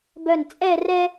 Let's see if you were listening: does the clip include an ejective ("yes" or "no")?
yes